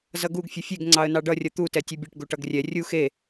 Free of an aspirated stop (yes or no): yes